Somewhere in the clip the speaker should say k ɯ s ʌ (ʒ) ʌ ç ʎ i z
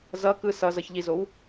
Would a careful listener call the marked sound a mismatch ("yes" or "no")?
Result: yes